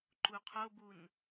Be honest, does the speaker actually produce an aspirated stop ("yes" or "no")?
yes